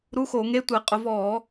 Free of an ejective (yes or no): no